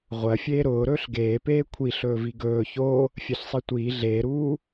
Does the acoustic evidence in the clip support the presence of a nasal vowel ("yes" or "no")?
no